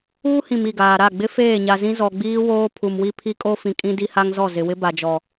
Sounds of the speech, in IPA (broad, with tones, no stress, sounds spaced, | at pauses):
uː˦ h ĩ˨ m i˦˨ ɡ aː˨ ɾ a˦˨ ɡ͡b ɪ˦ f eː˦˨ ɲ a˨ z ĩ˦ z ɔ˨ ɡ͡b iː˦ w oː˦ pʰ u˨ m w i˦ pʰ i˦ kʼ o˦ f ĩ˨ kʼ ĩ˦ d i˦ h a˦ ŋ z ɔ˦˨ z ɪ˨ w ɪ˦ b a˨ d͡ʒ ɔ˨